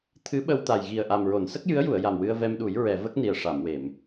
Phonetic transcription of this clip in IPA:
t̪ʰ ɨ˧˥ ɓ ə˧ w t̪ a˨˩ j ɣ i˨˩ ə̯ ʔ a˨˩ m ɹ o˨˩˨ n s ə˦˥ k̚ j ɨ˧˥ ə̯ j u˨˩˨ ə̯ j a˨˩ m w ɨ˧ ə̯ v ɛ˧ m ɗ u˨˩˦ j ɹ ɛ˨˩˨ v ə˦˥ k̚ n i˨˩ ə̯ ʂ a˨˩˨ m w e˨˩˨ m

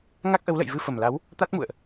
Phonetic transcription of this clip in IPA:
ŋ a˦˥ k̚ ʔ ə˨˦ w l ə̰˧˨ j v ɨ˧ f ə˨˩ m l a˨˦ w | t̪ a˦˥ t̚ m ṵ˧˨ ə̯ ʔ

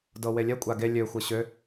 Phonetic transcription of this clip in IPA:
d ɤ w e lʲ ɛ kʷʼ a ɡ e lʲ ø xʷ ɤ ɕ ø

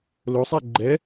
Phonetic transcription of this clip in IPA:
l o sˤ ɛ ɡ͡ǃ ɛ

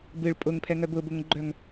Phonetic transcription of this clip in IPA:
b ɨ ɭ pʼ ʊ ŋ pʰ ɛ ŋ œ b ʊ b ʊ ŋ ɡ͡ǃ œ ŋ

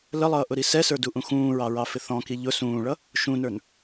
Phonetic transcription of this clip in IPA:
l ə lˠ ʌː ʔ ʊ ɾ i s ɛ s ə˞ d u ʔ ũ x ũː ɹ ɑ ɹ ɑ f ɪ θ ɔ̃ k i ʎ ʊ s ũː ɭ ʌ | ʃ ũ n ə˞ n

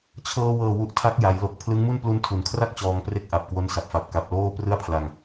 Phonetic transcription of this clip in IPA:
t͡ɕʰ ɤː˧ w ɤː˨˩ w u˨˩ ʔ tʰ a˦˥ k̚ j a˩˦ j l o˨˩ k̚ pʰ l ɯ˦˥ ŋ m u˥˩ n p l u˧ n tʰ u˩˦ n kʰ r a˥˩ k̚ t͡ɕ ɔː˧ ŋ p r e˥˩ k̚ ʔ a˨˩ p̚ k w o˦˥ n s a˨˩ p̚ f a˨˩ p̚ k a˨˩ p̚ l oː˥˩ p r ɯ˥˩ a̯ pʰ l a˧ ŋ

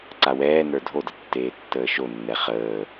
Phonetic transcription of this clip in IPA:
ǀ a w ɛː n ə˞ dʱ o d ə tː eː tː əː ʃ o nː ɛ χ əː

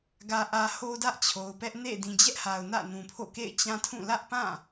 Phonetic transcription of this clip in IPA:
ɡ ä˨ ʔ ä˨ h o˦ d ä˦ ʔ t͡ɕʰ o˨ ʊ̯ p ɛ˦ ʔ n ḛ˦˨ d ĩ˨ d͡ʑ ɛ˦ ʔ h a˨ ʊ̯ n ä̰˦˨ n ũ˨ pʰ o̰˦˨ k ḛ˦˨ ɪ̯ t͡ɕ ã˦ tʰ ũ˦˨ l ä˦ ʔ p ã˦˨

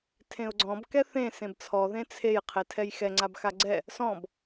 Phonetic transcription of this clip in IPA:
tʰ ẽ ʊ̯ ɡ͡ǀ ɔ̃ b k ɛ θ ẽ s ẽ b t͡sʰ ɔ ð ẽ t͡sʰ e j qʰ e tʰ ɛ j x ɛ ŋ͡ǀ a b x a ɡ͡ǀ ɛ | s ɔ̃ b

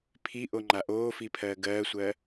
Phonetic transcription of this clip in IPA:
pʰ i ʔ o ŋ͡ǃ a ʔ oː f i pʰ ɜː ɡ ɜː sʷ ɜ

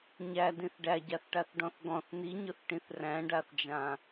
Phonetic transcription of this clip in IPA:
ɲ æ d ĩ θ ɖ æ ɟ a θ ʈ a θ ɖ ɔ̃ θ ɡ ɔ̃ θ n i ɲ ʊ θ ʈ ĩ θ r æ̃ ɖ a θ d͡ʒ ã

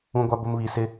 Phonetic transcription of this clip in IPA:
ũ˦ ɡʷ a˦ b ʊ˦ m β i˨ s ɪ˦

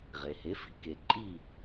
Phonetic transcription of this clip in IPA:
ʁ e˩ h e˩˥ f i̤˩˥ k e˩ ǃʼ i˥˩

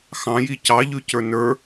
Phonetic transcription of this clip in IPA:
x ɑ̃ j i c ɑ ʎ ʉ c ə˞ n ə˞

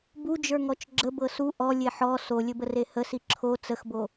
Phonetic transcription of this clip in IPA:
b u d͡ʒ ə˞ ŋ ɔ t͡ʃ ɡ͡ǁ ə b ɤ s u ʔ ɔ lʲ e ħ ɔ s o lʲ ɘ b ə r e h ə s i ǁʰ o t͡s ə x b o

